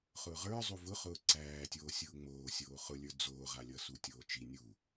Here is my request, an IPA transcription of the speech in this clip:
χ ʊː ʁ ə˞ zˤ u v ʊ χ ʊː ǀ æː tʲ oː sʲ ʊː ŋ͡m oː sʲ oː χ ʊ lʲ ə˞ d͡z oː ʁ a lʲ ʌ s u tʲ oː t͡ʃ i nʲ u

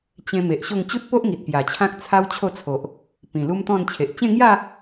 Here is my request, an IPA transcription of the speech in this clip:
t͡ɕ ẽ˧ m e˨ ʔ ɕ o˥˧ ŋ t͡ɕ u˦ t̚ p o˦ ʔ ŋ i˨ t̚ p j a˨˩ t͡ɕʰ ã˦ k̚ t͡sʰ a˦ w t͡ɕʰ o˥˧ t͡sʰ o˨ ʔ | p ĩ˨˩ l u˦ m t̪ ɔ̃˥˧ n t͡ɕʰ e˨ ʔ t͡ɕ ẽ˥˧ ŋ j a˥˧

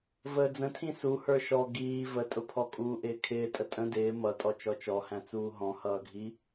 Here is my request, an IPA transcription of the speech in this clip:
v əː d͡z ə̃ tʰ ĩ s u h ə˞ ʃ ɔ ɡ iː v ə tʼ ʊ pʰ ɔ kʼ uː ʔ ɪː kʰ ɪː tʼ ə tʼ ə̃ d ɪː m ʌ tʼ ɔ t͡ʃ ɔ t͡ʃ ɔ h æ̃ t͡s uː ɦ ɔ̃ h ʌː ɡʱ i

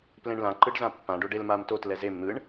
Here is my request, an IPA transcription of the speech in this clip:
p l ẽ ɳ l ã ǃ ɯ ɖ z ã pː ã ɖ o ɖ e l m a m t o t l ɛ z e m n̪ ɯ ɳ

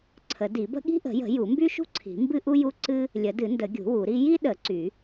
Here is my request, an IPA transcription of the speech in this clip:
ǀʰ ə˨˩˦ d i˨˩˦ b ə̤˥ ɠ i̤˥ ʔ ə̤˨˩˦ j ə̤˨˩˦ j u˨˩˦ m b y˥ ʃ ṳ˥ ǀʰ i̤˨˩˦ m b ɨ˥ ʔ u˥ j u˥ ǀ ɨ˥ | lʲ ə˨˩˦ d ɨ˨˩˦ n d ə˨˩˦ ɡʲ ṳ˨˩˦ w u˨˩˦ ɾ i˥ j i˥ ɗ ə˨˩˦ ǀ y˨˩˦

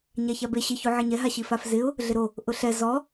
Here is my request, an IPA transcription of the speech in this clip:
ɲ a ç a b e ɕ ɪ ç u ʕ ɪ ɲ ɛ ɦ a ɕ i f a f z ɪ ʊ̯ | ɮ ɪ ɾ o | ʔ ʊ ɬ ɛ z ɔ

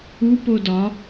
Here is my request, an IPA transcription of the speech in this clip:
u p o d ɒ

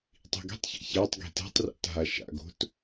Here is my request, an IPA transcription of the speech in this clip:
tˤ i̤ ɡ i̤ tˤ ç a̰ ç a tˤ ɡ i̤ t ɛ̤ tˤ r a̰ t ɦ a ʃ a̰ ɡ o̤ t

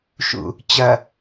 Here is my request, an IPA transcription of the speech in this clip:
ʃ ṵ | t͡ɕ ɐ

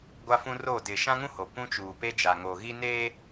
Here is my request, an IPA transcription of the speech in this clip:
ɡʷ a˦ f ũ˦ r o˦˨ d ɪ˨ ʃ ã˦ ŋ ũ˦ h o˨ p ũ˦ t͡ʃ uː˨ p e˦ d͡ʒ a˨ ŋ oː˨ ɣ i˦ n eː˦

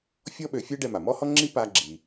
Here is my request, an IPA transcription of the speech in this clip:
fʲ ɔ˥ ɓ ø˧ fʲ ɛ˥ ɖ ɛ˧ m a˩ m ɔ˥ h ɔ˥ ŋ͡ǁ i˥ p a˧ ɡ͡ǁ i˩

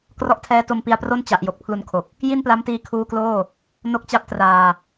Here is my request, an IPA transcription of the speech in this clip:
k r ɔ˥˩ ʔ tʰ ɛː˦˥ t o˧ m p i˧ a̯ p r o˥˩ n t͡ɕ a˨˩ ʔ j o˨˩ k̚ pʰ l u˧ n kʰ o˨˩ k̚ | j i˥˩ n p l a˦˥ m t iː˧ kʰ uː˦˥ k l oː˥˩ | n o˥˩ k̚ t͡ɕ a˥˩ p̚ t r aː˧

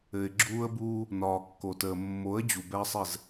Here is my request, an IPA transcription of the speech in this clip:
ɘ˨ ɪ̯ ɡ͡ǁ uː˦ ə̯ b uː˦ | n ɒː˨ kː o˨ t əː˨ mː o˨˦ ə̯ d͡ʑ u˨ b ɛ˦ ə̯ sˤ ɘ˦˨ z

